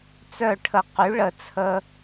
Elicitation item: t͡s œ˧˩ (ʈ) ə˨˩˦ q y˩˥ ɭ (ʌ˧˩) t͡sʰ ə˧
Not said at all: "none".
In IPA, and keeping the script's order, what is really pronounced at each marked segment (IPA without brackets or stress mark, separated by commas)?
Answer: ʈʰ, ə˧˩